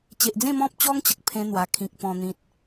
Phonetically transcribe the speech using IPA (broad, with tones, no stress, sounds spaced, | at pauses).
t͡ɕ e˨ ʔ d͡z ẽ˥˧ m ɔ̃˦ p̚ t͡ɕ ɔ˦ ŋ t͡ɕ ə˨ k̚ pʰ ẽ˧ n̪ w a˨˩ kʰ ĩ˨ k̚ p ɔ̃˨˩ n̪ ĩ˨ t̚